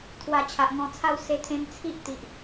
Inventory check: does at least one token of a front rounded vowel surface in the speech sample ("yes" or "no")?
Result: no